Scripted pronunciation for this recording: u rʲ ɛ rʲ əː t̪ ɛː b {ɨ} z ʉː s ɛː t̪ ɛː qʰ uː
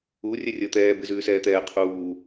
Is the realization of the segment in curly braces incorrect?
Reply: no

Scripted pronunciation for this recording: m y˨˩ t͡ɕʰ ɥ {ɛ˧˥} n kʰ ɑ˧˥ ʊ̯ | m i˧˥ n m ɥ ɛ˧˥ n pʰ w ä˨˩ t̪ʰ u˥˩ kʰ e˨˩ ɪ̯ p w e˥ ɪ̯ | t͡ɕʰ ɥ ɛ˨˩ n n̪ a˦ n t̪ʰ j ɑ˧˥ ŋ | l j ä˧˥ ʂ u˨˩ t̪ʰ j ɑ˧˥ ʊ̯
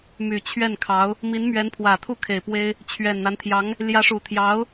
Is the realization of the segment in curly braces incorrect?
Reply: yes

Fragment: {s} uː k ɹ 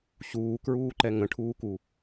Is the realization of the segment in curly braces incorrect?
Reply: yes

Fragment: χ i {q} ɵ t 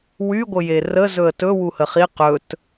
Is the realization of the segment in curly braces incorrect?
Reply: no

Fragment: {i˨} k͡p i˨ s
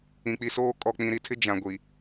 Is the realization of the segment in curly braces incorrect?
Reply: yes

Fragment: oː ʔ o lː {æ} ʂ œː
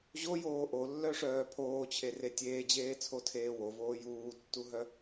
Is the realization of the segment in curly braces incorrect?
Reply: yes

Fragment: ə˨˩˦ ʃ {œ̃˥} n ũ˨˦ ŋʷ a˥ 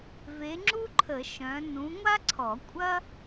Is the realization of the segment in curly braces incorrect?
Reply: yes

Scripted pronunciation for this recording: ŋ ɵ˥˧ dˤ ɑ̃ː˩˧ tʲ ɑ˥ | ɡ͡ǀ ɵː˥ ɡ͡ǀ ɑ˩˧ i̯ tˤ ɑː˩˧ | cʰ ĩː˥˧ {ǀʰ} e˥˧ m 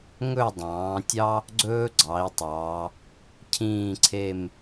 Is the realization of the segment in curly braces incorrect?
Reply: no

